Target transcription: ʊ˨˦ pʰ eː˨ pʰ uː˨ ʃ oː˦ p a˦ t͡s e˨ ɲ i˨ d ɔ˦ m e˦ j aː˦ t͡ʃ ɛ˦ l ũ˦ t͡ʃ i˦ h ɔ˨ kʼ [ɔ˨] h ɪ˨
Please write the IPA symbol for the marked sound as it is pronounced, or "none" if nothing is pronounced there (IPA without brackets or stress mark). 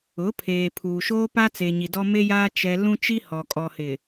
ɔ˨